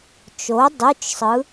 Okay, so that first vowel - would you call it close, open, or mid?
mid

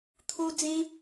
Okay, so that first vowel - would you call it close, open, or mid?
close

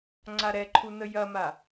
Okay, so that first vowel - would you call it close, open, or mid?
open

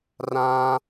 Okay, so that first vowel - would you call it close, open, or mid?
open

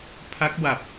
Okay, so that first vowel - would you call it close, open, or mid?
open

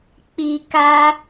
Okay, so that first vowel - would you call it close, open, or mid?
close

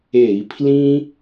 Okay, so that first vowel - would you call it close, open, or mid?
mid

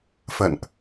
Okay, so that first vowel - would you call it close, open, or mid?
mid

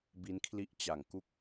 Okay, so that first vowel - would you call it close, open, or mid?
close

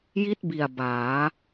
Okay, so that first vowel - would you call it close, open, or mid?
close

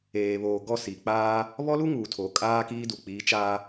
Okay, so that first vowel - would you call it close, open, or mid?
mid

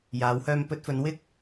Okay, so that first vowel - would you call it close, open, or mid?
open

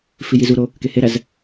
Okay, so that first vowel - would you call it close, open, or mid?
close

